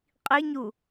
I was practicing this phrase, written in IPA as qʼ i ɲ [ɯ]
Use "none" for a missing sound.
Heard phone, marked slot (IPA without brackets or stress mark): u